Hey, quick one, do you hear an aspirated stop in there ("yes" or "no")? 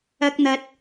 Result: no